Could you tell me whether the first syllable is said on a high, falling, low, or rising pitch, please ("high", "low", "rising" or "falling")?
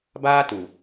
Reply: high